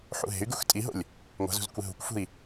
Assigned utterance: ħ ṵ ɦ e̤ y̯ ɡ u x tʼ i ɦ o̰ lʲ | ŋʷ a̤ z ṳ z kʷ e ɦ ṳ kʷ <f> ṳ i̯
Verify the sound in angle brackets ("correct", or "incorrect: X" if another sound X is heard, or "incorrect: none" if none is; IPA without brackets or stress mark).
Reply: correct